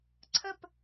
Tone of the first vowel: falling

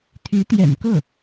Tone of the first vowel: rising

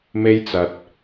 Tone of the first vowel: high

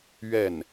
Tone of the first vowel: falling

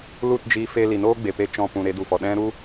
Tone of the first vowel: falling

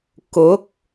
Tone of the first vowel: rising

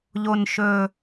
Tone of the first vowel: low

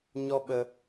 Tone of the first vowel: high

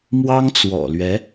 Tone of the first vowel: high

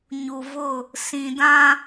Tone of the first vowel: low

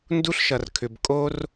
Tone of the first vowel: high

